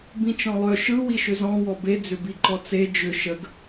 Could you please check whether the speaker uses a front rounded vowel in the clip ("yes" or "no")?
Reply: yes